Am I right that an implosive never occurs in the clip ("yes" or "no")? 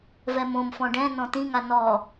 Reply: yes